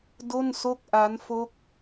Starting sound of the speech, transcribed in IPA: d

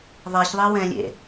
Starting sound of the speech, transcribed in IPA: ðˤ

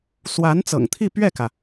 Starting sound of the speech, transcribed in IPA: s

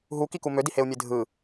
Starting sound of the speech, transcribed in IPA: ɦ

